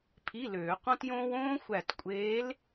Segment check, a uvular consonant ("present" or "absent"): present